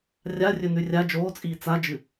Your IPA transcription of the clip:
rʲarʲɵnʉ rʲa d͡ʒoːt͡sʼiː t͡sad͡ʒɨ

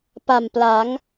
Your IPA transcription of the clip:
pa˨˩mpla˩˦ŋ

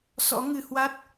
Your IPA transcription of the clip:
sɔ̰˧˥ŋɨ˨˩hwa˦˥t̚

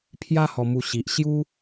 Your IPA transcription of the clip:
pʰja˦ hɔ˧mu˧ ɕi˨ʔ ɕju˦

